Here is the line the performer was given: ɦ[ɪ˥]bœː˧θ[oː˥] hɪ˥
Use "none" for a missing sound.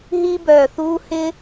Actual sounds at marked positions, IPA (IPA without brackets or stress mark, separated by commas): i˥, uː˥